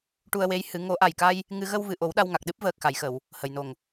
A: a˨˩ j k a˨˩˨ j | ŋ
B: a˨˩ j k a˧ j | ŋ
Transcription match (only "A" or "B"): B